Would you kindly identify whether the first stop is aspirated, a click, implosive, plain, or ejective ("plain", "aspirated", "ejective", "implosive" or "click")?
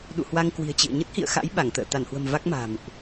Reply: implosive